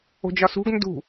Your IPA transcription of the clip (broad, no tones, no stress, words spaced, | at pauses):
o̤d͡ʒɒsṳɡ ndṳ